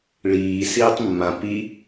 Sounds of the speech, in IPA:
ɭ iː s iː tˤ mː ã p i

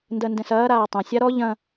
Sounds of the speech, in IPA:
n d ɜ n d ɛ̃ s ɐː ɾ aː tˤ ɐ̃ sʲ a ɾ ɔ ʎ ɐ̃

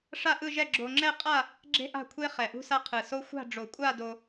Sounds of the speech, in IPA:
ʂ a˥˧ ʔ ɯ˥˧ ʒ ɛ˥˧ ɡ͡ǁ o˧ ŋ͡ǁ ɛ˥˧ qʼ a˥˧ | ɡ͡ǁ e̤˥ ʔ a̤˥˧ kʷʰ e˥ χ ɛ˧˩ ʔ ṳ˥ s a˥ qʰ ɯ˧˩ s o˥ xʷ a̤˥˧ ɖ͡ʐ o˧˩ kʷʼ a˥˧ d o˧

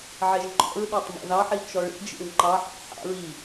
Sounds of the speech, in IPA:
ʕ e ʒ ŋ͡ǃ ɔ̰ ɹ ɗ œ tˤ m ɔ̰ ð ɑ ħ i t͡ʃ ɔ ɭ ḭ d͡ʒ ḭ ɭ ŋ͡ǃ ɑ ħ ɑ̰ ħ ɑ̰ ɹ i

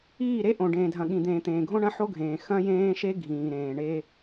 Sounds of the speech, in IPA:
iː˦˨ ɾ e˦ ʔ õ˨ ɖ ẽː˨ dʱ ɐ̃˨ ɠ ĩ˨ d̪ ẽː˨ t̪ ẽː˨ ɡʱ õ˦ ɳ ɐ̃˦ ħ o˦ ɡʱ ẽː˨ x ɐ̃˦ j ẽː˦ ʃ e˦ ɡʱ ĩː˨ ɾ ẽː˨ ɳ e˦

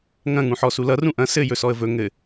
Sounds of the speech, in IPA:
ŋ ɐ̃ ŋ ũ ħ ɔ s u l ʌ r ũ ʔ ɐ̃ s ɘ j ɵ s ɔ ə̯ v ɵ ŋ ɘ

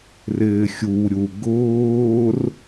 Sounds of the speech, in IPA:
r ɪː xʲ u ɾʲ u ɡ ʊː r

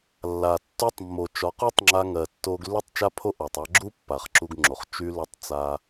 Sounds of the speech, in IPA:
lː a˨ tː u˧ tˤ mː o˨ t͡ʃ ɒ˨˦ q u˦ tˤ ŋ͡ǁ a˧ ŋ ɜ˨ tː o˧ ɡ lː y˦ tˤ t͡ʃ a˦ pʰ o˦ ʔ ɒ˨ tˤ a˧ ɡ͡ǁ u˦ pː a˨ χ ǁ u˧ ɡ ŋ͡ǁ o˨ χ t͡ʃ y˧ l o˧ tˤ t͡s a˦

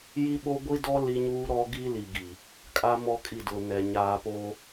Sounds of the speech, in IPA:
j i˦ ɓ o˦ ɡʷ i˦ d ɔ˦ l i˦ ɲ uː˦ ɾ ɔ˦ ɡ i˦ l i˨ ɡ i˨ | kʼ a˦ m ɔ˦ kʼ i˦˨ d ʊ˨ n ɛ˨ ɲ aː˨ p oː˦

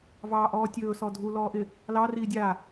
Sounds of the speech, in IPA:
v ɑː ʔ ɔː tʲ ɵː s ɔ dʱ u l ɔː ʔ ɪ | l ɑ r iː dʲ aː

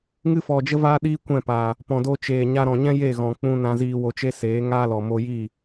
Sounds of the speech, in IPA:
ŋ ɨ˧ f ɔ˨ d͡ʒ ə˧ v aː˧ ɗ iː˧ kʷ ɛ̃˦˨ p aː˨ | p ɔ̃˨ d o˧ t͡ʃ eː˨ ɲ a˧ ɾ ɔ̃˨ ɲ ɛ̃˦ j e˦˨ ɣ ɔ̃˨ k͡p ũ˧ n ã˧ z iː˧ w o˧ t͡ʃ e˦ s eː˨˦ ŋ aː˦ l ɔ˨ m o˧ j iː˦˨

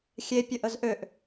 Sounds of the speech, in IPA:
xʲ e pʲ ə ʔ ə z ʔ ø ʔ

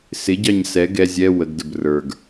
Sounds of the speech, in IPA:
s ɪ ɟ ɑ ɲ s ɛ ɡ ɛ zʲ ɛ w ə ɡ d ə b r ə˞ ɡ

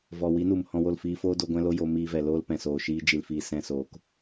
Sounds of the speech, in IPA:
v ɔ˨ w i˨˦ n u˨ m h ɔ̃˧ w o˦˨ l f iː˧ f oː˦ d o˧ ɡʷ ɛ̃˧ l o˧ j o˧ m iː˧ v ɛ˨ l oː˦ l p ɛ̃˨ s oː˨ ʃ iː˧ d͡ʒ i˨ l f iː˨ s ɛ̃˧ s oː˨ k

